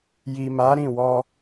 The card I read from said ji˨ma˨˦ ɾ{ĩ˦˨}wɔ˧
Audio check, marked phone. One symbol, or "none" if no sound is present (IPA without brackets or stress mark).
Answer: ĩ˦˨